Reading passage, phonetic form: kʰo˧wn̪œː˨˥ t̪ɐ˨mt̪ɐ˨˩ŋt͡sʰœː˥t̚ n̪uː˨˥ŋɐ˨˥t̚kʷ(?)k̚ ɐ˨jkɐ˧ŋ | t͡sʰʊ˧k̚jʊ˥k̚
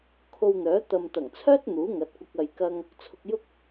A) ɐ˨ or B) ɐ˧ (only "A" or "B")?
B